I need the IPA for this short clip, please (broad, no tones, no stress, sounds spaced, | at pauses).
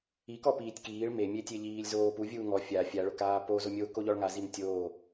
i k ɔ p iː tʲ k iː ɭ m e mʲ e tʲ e ʎ iː lʲ z oː p u vʲ uː ŋ ɔ fʲ a fʲ a ɭ ʊ k aː p o z o mʲ oː k o ʎ ɔ ɭ ŋ a z i m tʲ oː